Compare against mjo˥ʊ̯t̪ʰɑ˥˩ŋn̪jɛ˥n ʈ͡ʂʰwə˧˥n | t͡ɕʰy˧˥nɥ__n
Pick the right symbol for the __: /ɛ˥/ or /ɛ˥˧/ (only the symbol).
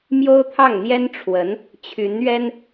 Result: ɛ˥